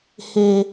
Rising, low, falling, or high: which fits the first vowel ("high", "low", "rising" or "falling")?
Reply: high